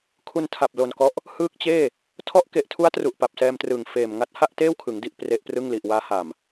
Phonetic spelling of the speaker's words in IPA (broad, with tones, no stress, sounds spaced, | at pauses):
kʰ u˧ n tʰ a˨˩ p̚ l o˧ n k ɔ˦˥ ʔ | h ɯː˦˥ k̚ t͡ɕ eː˥˩ | tʰ ɔ˦˥ ʔ k e˨˩ ʔ tʰ u˦˥ a̯ t r u˨˩ ʔ p a˨˩ p̚ s ɛː˧ m t r ɯː˨˩ ŋ f eː˨˩ m ŋ a˦˥ t̚ h a˥˩ ʔ t eː˥˩ w kʰ ɯ˩˦ ŋ d i˥˩ ʔ p r e˦˥ ʔ p r ɯ˥˩ ŋ l i˨˩ ʔ w aː˦˥ h a˨˩ m